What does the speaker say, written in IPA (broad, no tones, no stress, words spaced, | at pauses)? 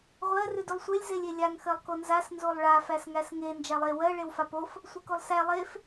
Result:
ʁʷɜ rʉdʉlˠsʷelʲ zelʲelʲaŋ xɜlˠkonzas nzolˠɭa fæsŋæsŋe nd͡ʒalˠe wɜ ɭewfapof | sʷekolˠsæ lˠef